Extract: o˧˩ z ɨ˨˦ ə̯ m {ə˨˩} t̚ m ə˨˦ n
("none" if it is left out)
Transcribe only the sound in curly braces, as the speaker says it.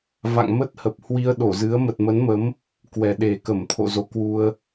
ə˨˩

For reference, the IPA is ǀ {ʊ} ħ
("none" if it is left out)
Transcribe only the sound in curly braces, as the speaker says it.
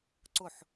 ʊ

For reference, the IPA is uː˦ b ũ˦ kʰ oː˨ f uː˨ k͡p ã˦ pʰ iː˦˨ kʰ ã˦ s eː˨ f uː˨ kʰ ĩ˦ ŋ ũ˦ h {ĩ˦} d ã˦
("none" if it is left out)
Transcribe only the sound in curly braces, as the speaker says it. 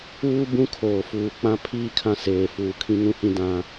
ĩ˦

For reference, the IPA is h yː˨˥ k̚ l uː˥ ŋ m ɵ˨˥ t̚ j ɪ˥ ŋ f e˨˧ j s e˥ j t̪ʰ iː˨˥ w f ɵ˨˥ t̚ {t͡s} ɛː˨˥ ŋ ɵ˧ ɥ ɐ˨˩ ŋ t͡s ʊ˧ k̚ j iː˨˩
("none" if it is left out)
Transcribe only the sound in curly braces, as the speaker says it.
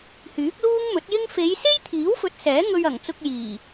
s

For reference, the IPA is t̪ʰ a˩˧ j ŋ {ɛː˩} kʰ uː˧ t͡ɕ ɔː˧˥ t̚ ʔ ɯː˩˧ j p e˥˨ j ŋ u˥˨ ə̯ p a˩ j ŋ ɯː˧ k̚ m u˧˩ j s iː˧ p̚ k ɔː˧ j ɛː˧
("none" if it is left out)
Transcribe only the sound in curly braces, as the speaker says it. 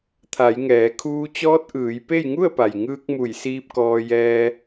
ɛː˩˧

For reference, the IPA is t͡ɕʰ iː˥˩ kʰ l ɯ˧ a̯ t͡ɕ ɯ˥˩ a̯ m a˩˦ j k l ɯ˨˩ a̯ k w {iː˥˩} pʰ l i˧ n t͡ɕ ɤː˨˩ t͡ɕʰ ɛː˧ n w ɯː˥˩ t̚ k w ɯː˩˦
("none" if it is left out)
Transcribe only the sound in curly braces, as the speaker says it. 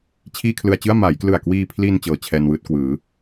iː˧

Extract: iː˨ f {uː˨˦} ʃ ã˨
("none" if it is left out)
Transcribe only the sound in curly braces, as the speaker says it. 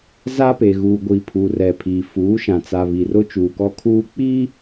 uː˨˦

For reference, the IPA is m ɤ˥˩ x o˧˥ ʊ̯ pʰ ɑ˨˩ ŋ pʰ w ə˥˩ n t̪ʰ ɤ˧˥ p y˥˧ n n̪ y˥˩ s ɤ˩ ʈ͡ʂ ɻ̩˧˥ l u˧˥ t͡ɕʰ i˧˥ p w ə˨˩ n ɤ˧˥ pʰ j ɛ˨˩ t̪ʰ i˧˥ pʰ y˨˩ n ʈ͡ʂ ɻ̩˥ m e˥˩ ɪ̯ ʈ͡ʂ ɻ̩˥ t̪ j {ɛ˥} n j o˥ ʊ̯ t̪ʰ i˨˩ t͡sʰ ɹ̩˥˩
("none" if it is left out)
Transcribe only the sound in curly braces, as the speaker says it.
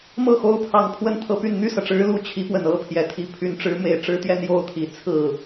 ɛ˥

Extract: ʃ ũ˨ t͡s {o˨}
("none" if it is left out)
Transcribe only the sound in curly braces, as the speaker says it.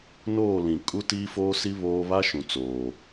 oː˨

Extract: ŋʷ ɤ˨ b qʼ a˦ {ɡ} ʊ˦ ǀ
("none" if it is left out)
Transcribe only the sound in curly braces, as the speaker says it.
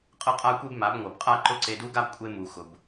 ǃ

